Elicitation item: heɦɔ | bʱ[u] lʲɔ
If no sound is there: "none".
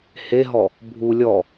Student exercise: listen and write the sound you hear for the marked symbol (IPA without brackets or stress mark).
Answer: u